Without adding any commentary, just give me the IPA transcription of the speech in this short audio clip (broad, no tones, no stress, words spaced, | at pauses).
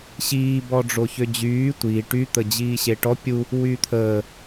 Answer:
ɕiː bɔɖ͡ʐoçød͡ʑyː tʷi ʈy t̪əd͡ʑiːɕeʈɔ pʲu | wyːt̪ʰəː